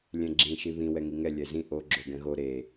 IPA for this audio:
lʲ ɛ̃ ɡ͡ǁ ĩ ʃ i β ĩ w ɛ ŋ i ŋ ɛ lʲ ɛ z ĩ ʔ o ɡ͡ǁ o ɡ ɛ̃ ɣ o ɾ e

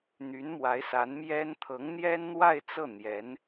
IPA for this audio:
n̪ y˧˥ n m w a˧˥ ɪ̯ s a˧˥ n m j ɛ˥ n t̪ʰ ɤ˧˥ ŋ n̪ j ɛ˥ n n̪ w a˥˧ ɪ̯ t͡s ɤ˥˩ n̪ j ɛ˧˥ n

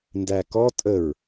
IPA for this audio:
n d æ k ɔ tʼ ə ɹ

